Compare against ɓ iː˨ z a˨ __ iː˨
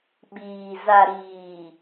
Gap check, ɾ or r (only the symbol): ɾ